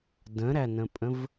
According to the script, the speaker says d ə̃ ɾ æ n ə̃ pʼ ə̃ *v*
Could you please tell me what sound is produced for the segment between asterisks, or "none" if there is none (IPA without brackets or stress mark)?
v